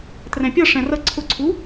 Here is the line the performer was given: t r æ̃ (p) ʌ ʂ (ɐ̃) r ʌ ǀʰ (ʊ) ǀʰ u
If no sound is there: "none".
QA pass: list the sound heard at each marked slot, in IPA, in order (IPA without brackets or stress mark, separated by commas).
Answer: pʲ, æ̃, ʊ